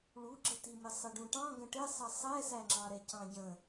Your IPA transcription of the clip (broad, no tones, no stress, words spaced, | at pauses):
ɭuɡ͡ǁətimɪ sˤɪɖũʈɑ̃ ɡə̃ʈɪsˤʌ sˤɛsæŋ͡ǁɑɾɛ cɑ̃ɟə̃